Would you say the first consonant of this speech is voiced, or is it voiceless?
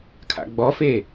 voiceless